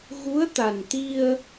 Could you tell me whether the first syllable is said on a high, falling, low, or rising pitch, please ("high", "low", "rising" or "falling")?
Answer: rising